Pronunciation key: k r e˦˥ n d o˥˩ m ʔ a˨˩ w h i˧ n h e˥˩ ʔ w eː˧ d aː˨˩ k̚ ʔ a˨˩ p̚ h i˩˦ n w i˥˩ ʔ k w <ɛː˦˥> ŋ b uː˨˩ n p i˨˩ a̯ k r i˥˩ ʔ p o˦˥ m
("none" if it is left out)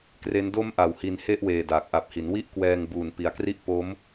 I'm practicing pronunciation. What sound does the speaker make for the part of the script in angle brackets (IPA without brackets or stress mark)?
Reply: ɛː˧